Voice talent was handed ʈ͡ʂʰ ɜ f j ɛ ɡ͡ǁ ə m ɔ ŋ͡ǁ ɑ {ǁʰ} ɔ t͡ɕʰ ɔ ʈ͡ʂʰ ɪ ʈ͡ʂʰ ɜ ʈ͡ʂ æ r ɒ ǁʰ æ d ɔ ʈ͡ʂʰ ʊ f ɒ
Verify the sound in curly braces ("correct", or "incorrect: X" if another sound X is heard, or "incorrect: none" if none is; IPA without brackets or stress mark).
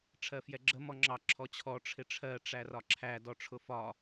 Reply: correct